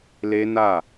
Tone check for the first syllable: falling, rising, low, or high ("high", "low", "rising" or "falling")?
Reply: high